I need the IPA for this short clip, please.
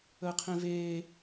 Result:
əː qʰ ẽ v eː

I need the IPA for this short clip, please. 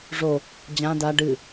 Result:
ʐ o | d͡ʑ ã d a ɖ ɨ

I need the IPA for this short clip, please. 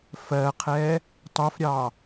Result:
f ɜ qʰ ɛ | tˤ u f ɾʲ ɑ

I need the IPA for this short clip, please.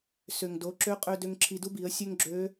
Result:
s ø˩ ŋ d o˩˧ ǁ ø˧˥ qʼ ø˧ d ø˧ ŋ ǁʰ i˧ d u˥ b i˩˧ ə̯ sʲ ø˥ ŋ ɡ͡ǁ ø˧˥

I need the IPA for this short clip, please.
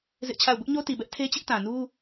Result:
z ɪ˦ ʔ t͡ɕʰ a˦˨ ʊ̯ b ʊ˦ ʔ ɲ o˦ t i˨ b ɛ˦ ʔ tʰ e˦ t͡ɕ ɪ˦ ʔ t ã˨ n u˦

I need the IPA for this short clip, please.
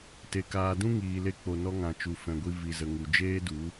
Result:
t e˨ k aː˨ d ũ˦ ŋ iː˨ l e˧ k͡p o˨ n ɔ˧ ŋ ã˨ t͡ʃ u˨ f ɛ̃˨ ɡʷ i˧ v i˨ z ə˨ ŋ u˨ d͡ʒ eː˦ d u˨˦

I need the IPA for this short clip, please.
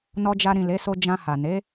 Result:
n ɔ˧ d͡ʒ a˧ ɾ ĩ˨ l e˨˦ s o˧ d͡ʒ ã˧ h a˨ n e˨˦

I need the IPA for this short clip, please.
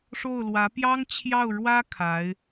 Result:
ʂ o˥˩ ʊ̯ l w ä˧˥ p j ɑ˥ ŋ t͡ɕʰ j ɑ˥˩ ʊ̯ ɻ w ä˥ kʰ a˧˥ ɪ̯

